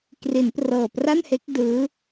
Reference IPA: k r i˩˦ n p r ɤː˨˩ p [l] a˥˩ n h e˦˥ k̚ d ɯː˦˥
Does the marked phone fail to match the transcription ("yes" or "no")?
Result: yes